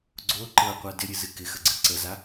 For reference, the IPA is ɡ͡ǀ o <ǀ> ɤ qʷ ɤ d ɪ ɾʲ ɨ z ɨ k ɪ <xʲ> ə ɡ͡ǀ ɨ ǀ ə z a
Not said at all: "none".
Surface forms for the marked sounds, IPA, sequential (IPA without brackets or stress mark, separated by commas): ǃ, x